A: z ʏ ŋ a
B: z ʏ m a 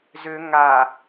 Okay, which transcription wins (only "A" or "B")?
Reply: A